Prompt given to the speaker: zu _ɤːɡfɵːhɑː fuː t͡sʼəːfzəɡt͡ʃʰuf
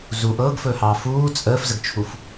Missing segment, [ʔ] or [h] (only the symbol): ʔ